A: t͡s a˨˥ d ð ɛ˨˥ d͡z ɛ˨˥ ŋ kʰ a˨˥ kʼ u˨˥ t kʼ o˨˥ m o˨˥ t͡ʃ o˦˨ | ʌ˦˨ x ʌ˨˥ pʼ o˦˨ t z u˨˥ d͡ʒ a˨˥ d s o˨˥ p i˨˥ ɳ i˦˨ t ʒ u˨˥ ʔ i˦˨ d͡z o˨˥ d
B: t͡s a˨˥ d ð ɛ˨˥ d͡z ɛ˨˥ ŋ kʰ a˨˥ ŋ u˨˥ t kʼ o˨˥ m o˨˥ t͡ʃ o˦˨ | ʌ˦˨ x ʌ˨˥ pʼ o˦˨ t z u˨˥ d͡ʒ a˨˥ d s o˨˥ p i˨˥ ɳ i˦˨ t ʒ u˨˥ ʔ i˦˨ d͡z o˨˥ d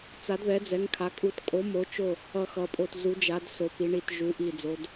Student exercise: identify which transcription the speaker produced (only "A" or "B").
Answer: A